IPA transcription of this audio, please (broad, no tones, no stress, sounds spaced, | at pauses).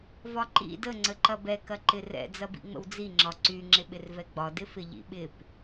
v ɒ ǃ ḭ d ə ŋ͡ǀ ə ǃ ɐ b ɛ k ɐ ǃ ɪ r ɛ̰ d͡z ɐ b ḭ ŋ͡m ə̰ w d͡z i ŋ͡ǁ ɒ ǀ y ŋ͡ǁ ɪ ɓ ɪ r v ɛ ɡ͡b ɒ d ɪ f ɪ ʎ ḭ ɓ ɪ p